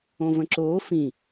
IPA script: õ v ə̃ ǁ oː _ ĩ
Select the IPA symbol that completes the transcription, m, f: f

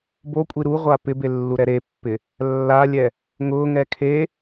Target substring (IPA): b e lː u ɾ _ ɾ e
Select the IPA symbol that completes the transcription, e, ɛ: ɛ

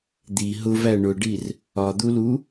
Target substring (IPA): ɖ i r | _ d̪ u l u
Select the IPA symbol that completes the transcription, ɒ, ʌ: ɒ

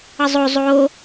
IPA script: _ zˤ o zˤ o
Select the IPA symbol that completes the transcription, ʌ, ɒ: ʌ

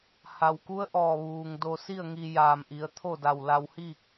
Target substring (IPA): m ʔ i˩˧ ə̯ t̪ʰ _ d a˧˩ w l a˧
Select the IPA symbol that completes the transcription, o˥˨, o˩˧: o˥˨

